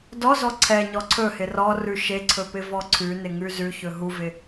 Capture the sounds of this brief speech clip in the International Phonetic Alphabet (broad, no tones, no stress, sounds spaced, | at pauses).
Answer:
d ɔ z ɔ ǀʰ ɛ ɲ ɔ ǀʰ ɵ h ɪ r ɔ r ʉ ʃ e ǀʰ ɵ p ɪ v ɔ ǀʰ ʉ n ɪ ŋ ʉ z ʉ ç ɵ ɦ u v ɪ